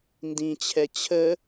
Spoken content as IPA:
n d ĩ t͡ɕʰ ɛ t͡ɕʰ ə

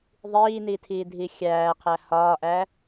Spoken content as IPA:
ðˤ iː n i tʰ iː dʱ i xʲ æː qʰ æ h ɒː ʔ æ

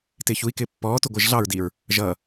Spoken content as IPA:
t ɪː ç u i̯ k ɪː pː ɔː t u ɡʷ ɪː ʒ ɮ ɑ ɹ d iː ɹ | ʒ ʌː

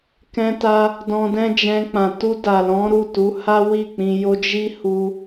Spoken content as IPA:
k ɛ̃˧ t a˧ | d ɔ̃˧ d ɛ̃˦ d͡ʒ ɛ̃˧ k͡p ã˨ t u˧ d a˨ l ɔ̃˨˦ ɾ u˦˨ t u˨˦ h a˦ w i˦˨ k͡p ĩ˧ j o˦ d͡ʒ i˦ h u˧

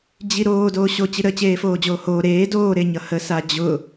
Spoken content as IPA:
d͡ʑ i ɾ oː d oː ɕ o t͡ɕ i ɾ ə t͡ɕ eː f oː d͡ʑ oː h oː ɾ eː d oː ɾ e ɲ ʌ h ə s a d͡ʑ ʊ

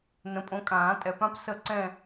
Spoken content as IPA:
n ə̃˨ pʼ õ˨˥ kʼ ãː˨˩˦ tʼ ɛ˨˩˦ p ã˥ p s ə˦˨ ǀ ɛ̃˦˨

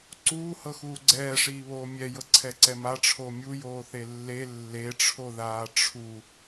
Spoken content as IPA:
ǀ uː h ɤ x uː ɡ͡ǀ ɛː ʂ iː β oː mʲ ɛ j ɤ ǀʰ ɛ ǀ ɛ m a ʈ͡ʂʰ o mʲ u j oː θ e lː e lː e ʈ͡ʂʰ o ð aː ʈ͡ʂʰ u

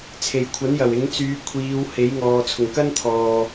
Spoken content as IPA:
t͡sʰ e˨˩ j kʷʰ ɐ˨˥ n j ɐ˨˩ w ɪ˨˥ ŋ t͡s yː˨˧ kʷʰ iː˨˧ w h e˨˥ j ŋ ɔː˨ t͡sʰ ʊ˨˩ ŋ k ɐ˥ n t̪ʰ ɔː˨

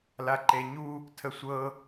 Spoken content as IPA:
l a ǃ e ɲ u | tʰ ə sʷ ɤ

